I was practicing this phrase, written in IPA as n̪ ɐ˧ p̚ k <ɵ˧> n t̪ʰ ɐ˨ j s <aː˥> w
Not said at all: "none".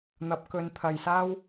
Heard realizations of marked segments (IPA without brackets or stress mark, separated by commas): ɵ˧, aː˥